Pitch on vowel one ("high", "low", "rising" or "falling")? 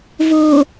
low